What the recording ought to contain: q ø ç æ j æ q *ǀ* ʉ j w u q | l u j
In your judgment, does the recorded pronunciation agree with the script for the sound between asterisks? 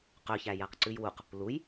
yes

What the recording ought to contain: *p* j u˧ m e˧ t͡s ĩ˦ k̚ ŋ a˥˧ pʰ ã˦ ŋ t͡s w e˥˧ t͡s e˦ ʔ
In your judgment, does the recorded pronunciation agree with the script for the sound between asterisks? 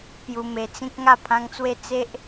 yes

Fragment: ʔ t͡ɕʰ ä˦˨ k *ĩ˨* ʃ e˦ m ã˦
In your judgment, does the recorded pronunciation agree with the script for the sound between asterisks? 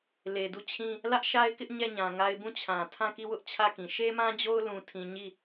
yes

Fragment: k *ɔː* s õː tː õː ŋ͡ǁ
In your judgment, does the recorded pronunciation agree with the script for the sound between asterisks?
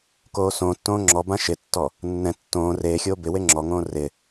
no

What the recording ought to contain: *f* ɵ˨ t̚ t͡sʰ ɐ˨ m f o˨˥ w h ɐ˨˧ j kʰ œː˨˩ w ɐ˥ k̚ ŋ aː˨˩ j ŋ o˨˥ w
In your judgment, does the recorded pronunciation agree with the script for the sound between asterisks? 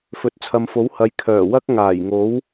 yes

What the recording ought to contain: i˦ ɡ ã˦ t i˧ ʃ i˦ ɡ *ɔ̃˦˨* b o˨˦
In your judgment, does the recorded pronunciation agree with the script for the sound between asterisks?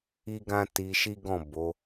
yes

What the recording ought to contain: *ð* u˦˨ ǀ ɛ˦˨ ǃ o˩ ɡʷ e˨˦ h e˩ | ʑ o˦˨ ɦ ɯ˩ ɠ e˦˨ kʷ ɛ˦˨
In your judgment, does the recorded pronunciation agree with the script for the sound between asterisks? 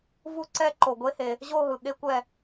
no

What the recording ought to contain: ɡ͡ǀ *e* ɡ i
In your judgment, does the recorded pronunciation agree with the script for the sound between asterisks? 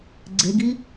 yes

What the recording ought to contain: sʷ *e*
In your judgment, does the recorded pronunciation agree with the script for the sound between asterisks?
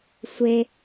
yes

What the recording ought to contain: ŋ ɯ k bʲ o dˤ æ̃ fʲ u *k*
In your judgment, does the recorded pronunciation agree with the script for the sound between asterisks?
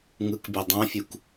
yes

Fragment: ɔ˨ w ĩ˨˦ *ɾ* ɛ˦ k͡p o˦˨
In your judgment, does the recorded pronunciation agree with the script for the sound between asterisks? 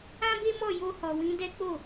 no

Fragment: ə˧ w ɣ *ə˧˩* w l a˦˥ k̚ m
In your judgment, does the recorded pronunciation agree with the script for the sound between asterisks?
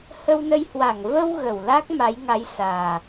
yes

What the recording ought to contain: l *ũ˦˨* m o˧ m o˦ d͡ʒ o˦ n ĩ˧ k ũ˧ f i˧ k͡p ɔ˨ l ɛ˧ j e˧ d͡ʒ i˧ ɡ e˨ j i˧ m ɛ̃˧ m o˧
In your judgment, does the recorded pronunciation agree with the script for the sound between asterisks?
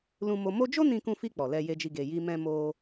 no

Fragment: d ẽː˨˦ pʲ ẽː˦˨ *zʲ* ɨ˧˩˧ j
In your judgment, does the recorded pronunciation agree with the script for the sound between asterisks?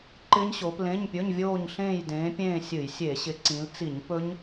no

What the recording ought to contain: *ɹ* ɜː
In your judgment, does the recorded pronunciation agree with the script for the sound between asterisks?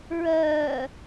yes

